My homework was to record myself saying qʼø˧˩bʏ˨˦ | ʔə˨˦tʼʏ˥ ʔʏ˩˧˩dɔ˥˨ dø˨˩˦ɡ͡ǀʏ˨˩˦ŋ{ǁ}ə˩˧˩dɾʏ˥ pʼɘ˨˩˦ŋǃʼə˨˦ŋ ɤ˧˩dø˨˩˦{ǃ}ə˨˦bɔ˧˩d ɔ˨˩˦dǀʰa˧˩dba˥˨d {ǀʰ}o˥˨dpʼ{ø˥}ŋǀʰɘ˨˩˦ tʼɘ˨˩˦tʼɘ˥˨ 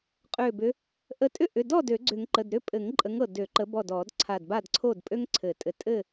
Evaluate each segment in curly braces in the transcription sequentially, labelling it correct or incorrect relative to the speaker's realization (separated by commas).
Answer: incorrect, correct, correct, correct